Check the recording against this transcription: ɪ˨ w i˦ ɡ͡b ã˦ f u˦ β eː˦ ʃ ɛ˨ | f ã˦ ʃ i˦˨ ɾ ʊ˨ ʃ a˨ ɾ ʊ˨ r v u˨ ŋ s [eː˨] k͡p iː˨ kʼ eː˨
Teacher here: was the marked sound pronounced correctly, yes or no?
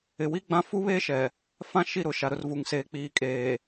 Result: yes